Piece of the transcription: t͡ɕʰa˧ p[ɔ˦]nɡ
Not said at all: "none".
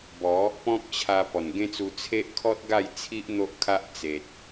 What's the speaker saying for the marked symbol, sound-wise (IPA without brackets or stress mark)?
ɔ˨˩